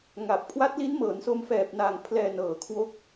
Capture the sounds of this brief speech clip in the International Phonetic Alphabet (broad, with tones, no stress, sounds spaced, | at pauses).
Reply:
ŋ a˨˩ p̚ kʰ w a˦˥ t̚ l i˦˥ n m ɤː˩˦ n s o˧ m f ɛː˨˩ p̚ n a˨˩ ŋ pʰ l ɛː˧ n ɤː˨˩ kʰ w o˦˥ k̚